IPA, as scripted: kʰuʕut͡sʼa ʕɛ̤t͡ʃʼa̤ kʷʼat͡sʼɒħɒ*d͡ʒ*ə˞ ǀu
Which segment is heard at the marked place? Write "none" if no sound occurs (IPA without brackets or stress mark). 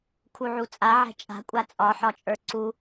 t͡ʃʼ